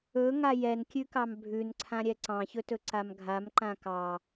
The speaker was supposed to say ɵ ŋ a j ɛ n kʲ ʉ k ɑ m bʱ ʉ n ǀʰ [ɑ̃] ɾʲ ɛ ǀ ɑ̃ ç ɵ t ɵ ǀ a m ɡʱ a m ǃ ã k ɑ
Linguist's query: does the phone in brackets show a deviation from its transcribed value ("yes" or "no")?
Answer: yes